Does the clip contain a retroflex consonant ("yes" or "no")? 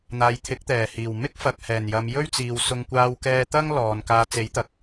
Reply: no